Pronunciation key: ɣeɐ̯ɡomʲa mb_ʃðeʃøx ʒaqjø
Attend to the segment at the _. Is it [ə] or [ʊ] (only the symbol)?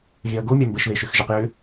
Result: ə